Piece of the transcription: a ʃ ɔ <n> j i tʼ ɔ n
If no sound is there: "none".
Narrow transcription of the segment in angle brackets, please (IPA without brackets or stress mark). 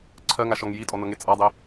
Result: ŋ